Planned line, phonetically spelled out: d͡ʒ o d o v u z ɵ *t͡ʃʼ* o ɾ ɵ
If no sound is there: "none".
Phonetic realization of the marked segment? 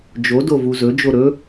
d͡ʒ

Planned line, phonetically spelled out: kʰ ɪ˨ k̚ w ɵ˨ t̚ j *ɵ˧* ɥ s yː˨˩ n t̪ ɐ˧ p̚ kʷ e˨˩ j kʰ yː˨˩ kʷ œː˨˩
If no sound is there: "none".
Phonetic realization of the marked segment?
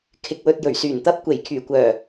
ɵ˨˩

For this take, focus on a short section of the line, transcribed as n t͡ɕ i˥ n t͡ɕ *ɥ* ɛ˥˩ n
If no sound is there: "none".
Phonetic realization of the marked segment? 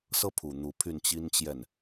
j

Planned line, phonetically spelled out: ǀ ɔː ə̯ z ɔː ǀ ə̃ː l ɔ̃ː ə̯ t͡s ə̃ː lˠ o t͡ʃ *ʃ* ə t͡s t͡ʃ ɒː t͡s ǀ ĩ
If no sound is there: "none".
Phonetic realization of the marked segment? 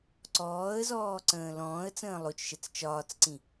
ʃ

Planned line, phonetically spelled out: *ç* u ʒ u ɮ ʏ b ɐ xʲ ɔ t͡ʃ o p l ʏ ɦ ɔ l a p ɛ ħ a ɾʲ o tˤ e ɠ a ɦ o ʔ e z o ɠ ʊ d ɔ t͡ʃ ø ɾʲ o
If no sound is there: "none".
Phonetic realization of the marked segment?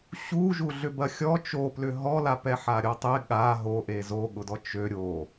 ɕ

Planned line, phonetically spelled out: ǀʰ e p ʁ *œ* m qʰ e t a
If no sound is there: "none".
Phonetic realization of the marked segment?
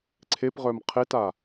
œ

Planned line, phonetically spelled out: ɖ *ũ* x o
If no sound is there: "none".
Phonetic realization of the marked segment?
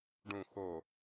ũ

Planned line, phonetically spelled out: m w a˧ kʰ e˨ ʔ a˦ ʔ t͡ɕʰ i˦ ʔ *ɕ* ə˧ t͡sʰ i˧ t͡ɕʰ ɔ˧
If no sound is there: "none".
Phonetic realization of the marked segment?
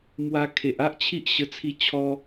ɕ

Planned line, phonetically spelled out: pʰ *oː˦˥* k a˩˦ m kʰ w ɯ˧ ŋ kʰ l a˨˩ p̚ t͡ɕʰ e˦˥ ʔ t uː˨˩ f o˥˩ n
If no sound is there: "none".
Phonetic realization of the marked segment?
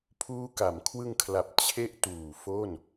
uː˦˥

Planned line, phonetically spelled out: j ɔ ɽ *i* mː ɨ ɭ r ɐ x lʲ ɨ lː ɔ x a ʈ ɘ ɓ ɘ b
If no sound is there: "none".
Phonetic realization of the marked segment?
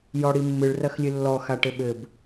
i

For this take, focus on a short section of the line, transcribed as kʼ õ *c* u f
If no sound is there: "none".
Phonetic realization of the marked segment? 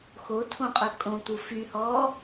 t̪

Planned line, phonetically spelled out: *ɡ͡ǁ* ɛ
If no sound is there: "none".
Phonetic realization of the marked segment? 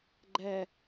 ɡ͡ǃ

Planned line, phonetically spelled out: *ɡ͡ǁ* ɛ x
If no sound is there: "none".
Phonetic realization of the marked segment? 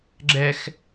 ɡ͡ǁ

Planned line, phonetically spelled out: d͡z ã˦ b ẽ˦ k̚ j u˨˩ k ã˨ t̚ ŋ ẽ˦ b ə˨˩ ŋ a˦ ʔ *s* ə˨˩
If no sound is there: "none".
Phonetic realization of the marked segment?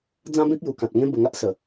s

